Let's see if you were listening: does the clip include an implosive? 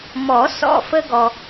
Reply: no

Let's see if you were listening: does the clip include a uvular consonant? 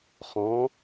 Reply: yes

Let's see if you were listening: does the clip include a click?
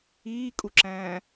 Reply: yes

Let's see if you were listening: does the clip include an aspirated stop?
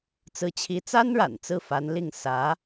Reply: yes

